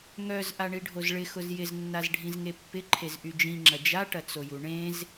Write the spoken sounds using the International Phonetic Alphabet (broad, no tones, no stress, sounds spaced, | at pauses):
ŋ œ z ʔ a ɳ i ɖʱ o z ɭ ɪ x ʊ z j ɪ z nː a z ɖʱ ĩ z ŋ e pː ɪ ǃʰ e z ʔ y d͡ʒ ĩ ŋ͡ǁ ɐ d͡ʒ a ʈ ɐ t͡s o j u ɳ ẽ z